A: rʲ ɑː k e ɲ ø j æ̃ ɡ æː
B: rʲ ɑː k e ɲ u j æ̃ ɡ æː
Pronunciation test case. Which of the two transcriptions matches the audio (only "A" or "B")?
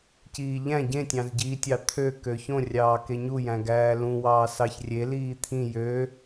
B